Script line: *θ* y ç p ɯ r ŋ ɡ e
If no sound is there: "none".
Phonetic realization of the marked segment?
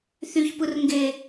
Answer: θ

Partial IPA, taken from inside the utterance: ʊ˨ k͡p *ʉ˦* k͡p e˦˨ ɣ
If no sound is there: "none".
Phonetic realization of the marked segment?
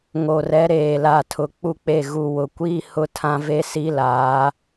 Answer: u˦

